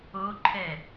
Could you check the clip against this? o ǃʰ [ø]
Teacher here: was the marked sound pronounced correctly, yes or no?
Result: no